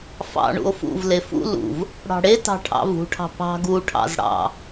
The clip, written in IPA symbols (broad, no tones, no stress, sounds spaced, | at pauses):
f ɑ̰ ɳ ṵ o̯ f ṵ v l e f ṵ l ṵ v | ɽ ɑ̤ ɽ e t ɑ̤ ʈʰ ɑ̰ v ṳ ʈʰ ɑ̤ p ɑ̤ ɡ u ʈʰ ɑ̰ z ɽ ɑ̰